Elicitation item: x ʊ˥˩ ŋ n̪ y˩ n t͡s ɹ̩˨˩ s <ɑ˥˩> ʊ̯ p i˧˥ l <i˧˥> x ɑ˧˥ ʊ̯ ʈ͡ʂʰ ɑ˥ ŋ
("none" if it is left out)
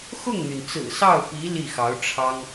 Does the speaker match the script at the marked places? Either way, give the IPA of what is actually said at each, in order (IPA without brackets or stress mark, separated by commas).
ɑ˥˩, i˥˩